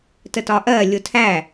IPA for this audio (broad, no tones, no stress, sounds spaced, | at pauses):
t ə t ɒ ʔ ɜ lʲ ʊ tʰ æ